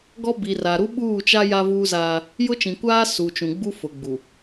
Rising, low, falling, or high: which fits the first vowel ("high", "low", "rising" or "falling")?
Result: high